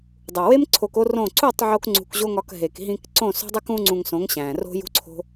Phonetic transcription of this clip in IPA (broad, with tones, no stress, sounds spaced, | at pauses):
dˤ u˨ w e˦ m ǀʰ o˧ k o˦ r õ˦˨ ǀ u˦˨ tˤ ʕ o˦ k ŋ͡ǀ ṳ˧ k ʑ o˦ ŋ ɒ˧ k ɦ e˨ k ɦ ĩ˧ k ǀ õ˦˨ s o̤˦ dˤ i˦ k ũ˦ ŋ͡ǀ ũ˧ ŋ s õ˨˦ ŋ ɕ æ̃˨ r o̤˦ j ṳ˦ ǀʰ o̤˦